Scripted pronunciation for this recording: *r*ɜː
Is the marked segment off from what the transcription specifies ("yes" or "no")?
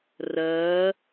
no